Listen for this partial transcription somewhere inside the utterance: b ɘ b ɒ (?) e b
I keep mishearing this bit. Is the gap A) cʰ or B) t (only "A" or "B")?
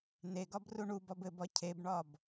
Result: A